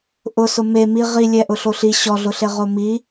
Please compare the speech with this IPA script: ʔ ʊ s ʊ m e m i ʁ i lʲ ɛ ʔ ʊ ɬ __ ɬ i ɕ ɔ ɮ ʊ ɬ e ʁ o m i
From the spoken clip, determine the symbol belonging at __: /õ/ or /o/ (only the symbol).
o